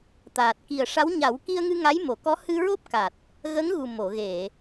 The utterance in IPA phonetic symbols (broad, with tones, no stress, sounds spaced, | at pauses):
t̪ aː˨˩ t̚ k i˨˩ ə̯ ʂ a˧˥ w ɲ a˨˩˦ w k i˧ ə̯ ŋ ɨ˧ ŋ a˧˥ j m o˨˩˨ k ɔ˧˥ h ɨ˧ ɹ o˦˥ p̚ k a˨˩ t̚ | ɣ ə˧˥ ŋ ɣ u˨˩ m o˨˩˨ ɣ e˨˩˨